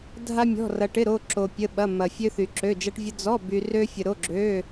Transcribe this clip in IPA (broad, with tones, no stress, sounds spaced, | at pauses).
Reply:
dʱ a˥ mʲ ɔ̤˧˥˧ r ɐ˧ ʈ ɪ˧˥˧ ɾ o˧˥˧ ǁ o˧ pʲ ə˧˥˧ ɓ ɐ˧˥˧ m ɐ˧ fʲ ø˥ θ y˧ ǁ ø˧˥˧ d͡ʒ ɐ˥ ʈ vʲ ə˥ d͡z ɔ˧˥˧ b y˧ r ø˥ fʲ ə˧ ɾ o˧˥˧ ɡ͡ǁ ø˧˥˧